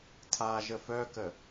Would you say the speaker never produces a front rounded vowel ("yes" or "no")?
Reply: no